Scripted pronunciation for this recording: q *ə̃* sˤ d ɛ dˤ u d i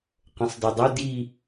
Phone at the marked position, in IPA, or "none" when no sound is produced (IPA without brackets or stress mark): ə̃